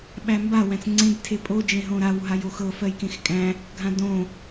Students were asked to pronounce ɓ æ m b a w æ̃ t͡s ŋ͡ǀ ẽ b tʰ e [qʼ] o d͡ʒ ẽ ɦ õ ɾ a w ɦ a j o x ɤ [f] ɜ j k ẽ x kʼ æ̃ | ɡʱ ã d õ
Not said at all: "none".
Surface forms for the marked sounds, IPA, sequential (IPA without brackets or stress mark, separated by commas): pʼ, f